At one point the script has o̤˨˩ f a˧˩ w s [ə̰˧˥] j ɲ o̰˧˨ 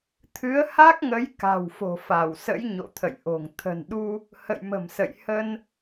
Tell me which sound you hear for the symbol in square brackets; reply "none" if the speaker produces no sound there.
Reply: ə̰˧˥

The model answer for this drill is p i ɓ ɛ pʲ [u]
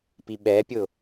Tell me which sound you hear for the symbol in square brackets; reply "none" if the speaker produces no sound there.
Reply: ʊ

